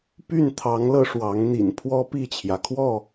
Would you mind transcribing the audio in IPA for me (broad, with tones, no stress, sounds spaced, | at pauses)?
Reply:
p y˥˨ n t̪ʰ ɑ˨˦ ŋ l ɤ˧ ʂ w ɑ˨˦ ŋ n̪ ḭ˨˩ n pʰ w ɔ˦ p i˥˨ t͡ɕʰ j ä˩ kʰ w ɔ˥˨